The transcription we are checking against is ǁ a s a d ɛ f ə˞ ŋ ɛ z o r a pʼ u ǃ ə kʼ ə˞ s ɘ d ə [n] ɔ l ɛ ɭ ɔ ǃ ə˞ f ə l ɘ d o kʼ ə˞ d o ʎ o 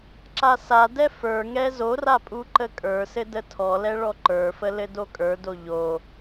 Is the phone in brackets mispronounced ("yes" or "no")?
yes